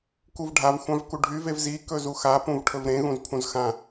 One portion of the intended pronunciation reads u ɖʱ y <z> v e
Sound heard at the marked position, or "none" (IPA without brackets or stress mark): none